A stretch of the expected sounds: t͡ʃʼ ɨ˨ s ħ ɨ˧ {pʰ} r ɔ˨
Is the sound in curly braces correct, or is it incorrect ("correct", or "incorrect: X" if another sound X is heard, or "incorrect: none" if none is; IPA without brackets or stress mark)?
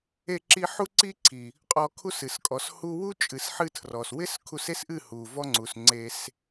incorrect: tʰ